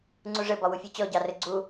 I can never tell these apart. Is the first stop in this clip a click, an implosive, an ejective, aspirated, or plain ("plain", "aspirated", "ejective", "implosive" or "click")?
click